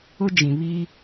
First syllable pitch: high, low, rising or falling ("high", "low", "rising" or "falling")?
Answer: high